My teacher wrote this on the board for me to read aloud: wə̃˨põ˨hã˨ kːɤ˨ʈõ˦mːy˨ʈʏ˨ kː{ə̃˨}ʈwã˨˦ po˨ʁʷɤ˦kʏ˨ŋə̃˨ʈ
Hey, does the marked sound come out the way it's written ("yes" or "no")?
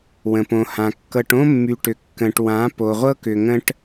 yes